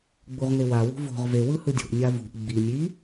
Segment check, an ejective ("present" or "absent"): absent